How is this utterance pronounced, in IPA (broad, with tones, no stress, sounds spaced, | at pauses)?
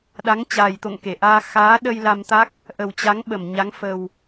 ɗ a˨˦ ŋ t͡ɕ aː˨˩ j t̪ o̰˧˨ ŋ k e˧˩ ʔ aː˧ x aː˨˦ ɗ ə˧ j l a˧ m t̪ a˦˥ k̚ | ʔ ə˨˩ w t͡ɕ a˨˦ ŋ ɓ ə˧˩ m ɲ a˨˦ ŋ f ə˨˩ w